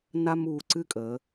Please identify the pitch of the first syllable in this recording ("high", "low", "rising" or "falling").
high